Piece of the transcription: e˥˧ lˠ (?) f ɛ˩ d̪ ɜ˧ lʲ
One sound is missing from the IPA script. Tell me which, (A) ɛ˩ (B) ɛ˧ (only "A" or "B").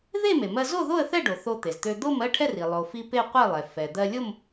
A